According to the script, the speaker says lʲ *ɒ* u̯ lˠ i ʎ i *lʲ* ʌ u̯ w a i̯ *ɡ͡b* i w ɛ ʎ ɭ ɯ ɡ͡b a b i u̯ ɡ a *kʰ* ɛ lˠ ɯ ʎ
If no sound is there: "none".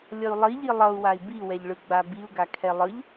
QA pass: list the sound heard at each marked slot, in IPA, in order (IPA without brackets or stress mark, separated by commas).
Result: ʌ, lˠ, b, kʰ